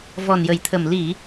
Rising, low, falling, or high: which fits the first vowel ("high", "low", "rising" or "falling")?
low